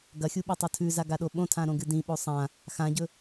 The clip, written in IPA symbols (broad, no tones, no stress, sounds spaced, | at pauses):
ɡ ɐ xʲ u ɓ e tˤ o tʰ ʉ z a ɡ a ɗ o ɓ õ tʰ ã ɾ õ ɡ ɨ d ĩ ɓ o sˤ ã | x ã ɟ ɵ